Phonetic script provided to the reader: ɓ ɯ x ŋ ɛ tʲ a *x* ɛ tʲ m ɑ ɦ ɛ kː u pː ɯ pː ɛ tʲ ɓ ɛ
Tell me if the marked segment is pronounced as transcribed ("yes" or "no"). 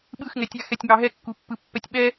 yes